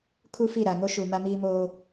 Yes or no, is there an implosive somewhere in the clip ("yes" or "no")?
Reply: no